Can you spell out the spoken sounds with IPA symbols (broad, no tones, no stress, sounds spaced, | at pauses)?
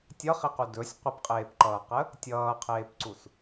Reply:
tʲ ʌ χ i q u d ɵ sʲ qʷ ə p qʼ eː p ǃ ʌː q ə | tʲ ʌː qʰ eː p ǀ u s